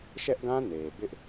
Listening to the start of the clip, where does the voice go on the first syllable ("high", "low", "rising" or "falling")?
high